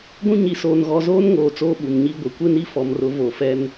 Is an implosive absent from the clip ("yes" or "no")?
no